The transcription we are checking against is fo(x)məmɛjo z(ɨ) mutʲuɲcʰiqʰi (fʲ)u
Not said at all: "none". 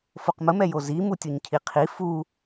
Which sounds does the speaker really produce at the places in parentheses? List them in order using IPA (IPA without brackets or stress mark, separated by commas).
q, i, f